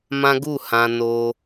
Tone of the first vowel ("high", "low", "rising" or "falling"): high